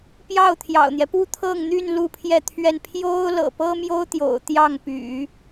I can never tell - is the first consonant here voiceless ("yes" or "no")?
yes